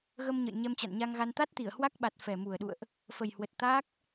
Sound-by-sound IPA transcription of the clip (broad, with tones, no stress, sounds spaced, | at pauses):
ɣ ə˧ m ɲ ə̰˧˨ j ɲ ɛ˧ m t͡ɕ a̰˧˨ n ɲ a˧ ŋ ɣ a˧ n t̪ a˦˥ t̚ t̪ i˧˩ ə̯ h w a˦˥ k̚ ɓ a˨˩ t̚ f ɛ˨˩ m u˨˩ ə̯ ɗ ṵ˧˨ ə̯ ʔ | f ə˨˩ j h w ə˨˩ t̚ t̪ aː˦˥ k̚